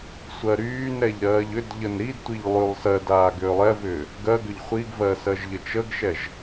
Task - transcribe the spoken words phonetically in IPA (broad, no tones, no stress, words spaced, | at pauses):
sʷɜɾyːnɾɛʎ ɾɜːʎʏdʎən ɾidtʷiʎ lˠylˠ sɜdaː ɡʏːlˠɛvʏː | ɡɜɡʏʎ χʷiɡvɜ sɜʒʎət͡ʃəɡʃɛʒ